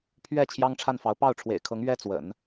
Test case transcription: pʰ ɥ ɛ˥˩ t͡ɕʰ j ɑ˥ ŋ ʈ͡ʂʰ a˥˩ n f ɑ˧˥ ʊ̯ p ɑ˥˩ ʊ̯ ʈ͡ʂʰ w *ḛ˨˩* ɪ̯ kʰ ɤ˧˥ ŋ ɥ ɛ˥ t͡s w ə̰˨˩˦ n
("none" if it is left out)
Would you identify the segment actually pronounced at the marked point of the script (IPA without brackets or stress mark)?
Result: ḛ˨˩